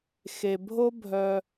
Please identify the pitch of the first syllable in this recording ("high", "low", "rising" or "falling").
low